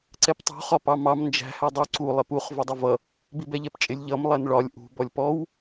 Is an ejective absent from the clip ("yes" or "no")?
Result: no